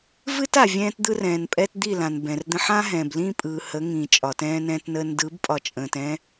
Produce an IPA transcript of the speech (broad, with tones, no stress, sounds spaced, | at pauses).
v ɨ˦ t a˨ vʲ ɛ̃ː˦ t d̪ ɯ˦ r ɛ̃ː˨ n pʼ ɛ˦ t d̪ i˦˨ l ã˨ n b ɛ̃˨ r d̪ ə̃˦ ħ ã˦ ɦ ɛ̃ː˨ b l ĩː˦ pʼ ɯː˨ h ə˨˦ ŋ ĩː˨ t͡ʃʼ ɒ˨ t ɛ̃ː˦ n ɛ̃ː˦ t n əː˦ n d ɯ˨˦ b pʼ ɒ˨ t͡ʃʼ ə̃ː˨ t ɛ̃˦